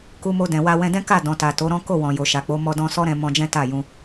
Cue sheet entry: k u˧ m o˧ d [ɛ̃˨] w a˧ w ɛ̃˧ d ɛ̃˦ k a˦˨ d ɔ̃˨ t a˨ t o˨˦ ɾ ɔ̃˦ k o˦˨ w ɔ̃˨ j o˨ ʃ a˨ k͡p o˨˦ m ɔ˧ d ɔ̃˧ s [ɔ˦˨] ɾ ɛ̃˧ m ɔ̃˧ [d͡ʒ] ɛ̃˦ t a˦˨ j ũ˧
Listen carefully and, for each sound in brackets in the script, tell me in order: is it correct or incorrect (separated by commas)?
correct, incorrect, correct